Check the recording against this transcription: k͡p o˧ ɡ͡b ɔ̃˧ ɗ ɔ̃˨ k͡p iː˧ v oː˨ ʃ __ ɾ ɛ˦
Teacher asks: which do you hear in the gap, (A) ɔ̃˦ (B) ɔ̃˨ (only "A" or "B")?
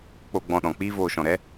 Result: B